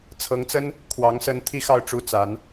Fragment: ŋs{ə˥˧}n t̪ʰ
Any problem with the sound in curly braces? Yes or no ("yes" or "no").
yes